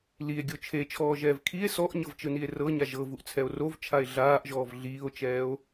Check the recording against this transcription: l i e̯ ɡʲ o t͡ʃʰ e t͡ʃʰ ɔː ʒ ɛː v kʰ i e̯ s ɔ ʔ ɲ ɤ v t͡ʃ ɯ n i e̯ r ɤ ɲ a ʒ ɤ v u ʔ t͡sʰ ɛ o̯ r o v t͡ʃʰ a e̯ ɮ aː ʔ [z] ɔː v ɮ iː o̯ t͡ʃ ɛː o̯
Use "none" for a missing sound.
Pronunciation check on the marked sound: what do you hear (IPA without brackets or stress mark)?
ʒ